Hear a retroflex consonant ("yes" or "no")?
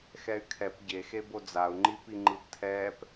no